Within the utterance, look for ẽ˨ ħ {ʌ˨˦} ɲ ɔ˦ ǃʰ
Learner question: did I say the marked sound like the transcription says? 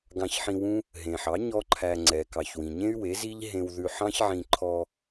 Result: no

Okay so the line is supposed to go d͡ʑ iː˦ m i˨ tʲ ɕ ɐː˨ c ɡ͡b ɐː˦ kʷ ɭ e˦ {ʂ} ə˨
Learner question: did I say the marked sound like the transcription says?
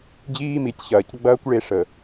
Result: yes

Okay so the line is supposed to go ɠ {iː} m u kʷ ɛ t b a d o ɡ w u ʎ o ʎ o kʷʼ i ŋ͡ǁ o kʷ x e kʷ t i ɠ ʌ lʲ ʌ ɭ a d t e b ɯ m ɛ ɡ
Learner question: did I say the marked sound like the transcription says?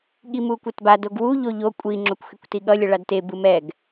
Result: no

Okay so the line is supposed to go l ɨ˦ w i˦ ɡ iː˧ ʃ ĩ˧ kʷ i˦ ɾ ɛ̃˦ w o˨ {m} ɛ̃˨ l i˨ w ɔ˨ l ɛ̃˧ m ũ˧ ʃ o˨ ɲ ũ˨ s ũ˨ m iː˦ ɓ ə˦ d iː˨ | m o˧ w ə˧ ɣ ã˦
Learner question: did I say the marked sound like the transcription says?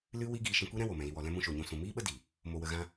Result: yes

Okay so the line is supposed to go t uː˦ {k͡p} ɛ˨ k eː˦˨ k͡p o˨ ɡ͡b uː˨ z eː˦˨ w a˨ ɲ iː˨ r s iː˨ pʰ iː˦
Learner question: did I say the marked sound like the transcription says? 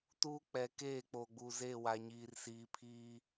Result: yes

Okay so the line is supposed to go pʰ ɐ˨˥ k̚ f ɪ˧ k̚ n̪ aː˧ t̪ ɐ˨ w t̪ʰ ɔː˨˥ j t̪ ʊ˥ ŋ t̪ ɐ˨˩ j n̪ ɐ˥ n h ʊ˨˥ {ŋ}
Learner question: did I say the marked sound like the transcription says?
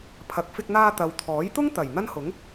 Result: yes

